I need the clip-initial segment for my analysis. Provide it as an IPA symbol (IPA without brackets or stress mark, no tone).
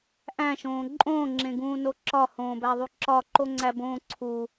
ʔ